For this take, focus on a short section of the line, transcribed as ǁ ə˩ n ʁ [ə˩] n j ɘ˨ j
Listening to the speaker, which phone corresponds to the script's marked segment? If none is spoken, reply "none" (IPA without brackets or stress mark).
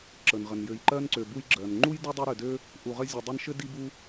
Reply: ə˩